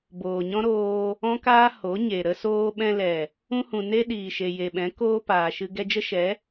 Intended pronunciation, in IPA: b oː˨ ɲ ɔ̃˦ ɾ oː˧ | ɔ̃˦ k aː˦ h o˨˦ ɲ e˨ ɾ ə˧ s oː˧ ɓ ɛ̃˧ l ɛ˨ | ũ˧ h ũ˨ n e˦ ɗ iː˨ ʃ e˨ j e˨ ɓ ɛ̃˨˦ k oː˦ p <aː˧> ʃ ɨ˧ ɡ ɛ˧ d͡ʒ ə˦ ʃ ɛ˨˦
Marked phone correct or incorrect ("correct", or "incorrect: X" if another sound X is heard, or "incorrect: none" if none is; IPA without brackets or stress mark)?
incorrect: aː˨